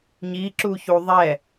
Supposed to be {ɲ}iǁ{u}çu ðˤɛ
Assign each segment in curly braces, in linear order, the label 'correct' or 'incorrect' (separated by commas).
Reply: correct, correct